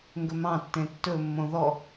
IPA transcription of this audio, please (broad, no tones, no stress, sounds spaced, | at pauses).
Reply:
ŋ ɡ ɵ m ɑ̃ tː ẽ tː ɵ mː õ ð ɔ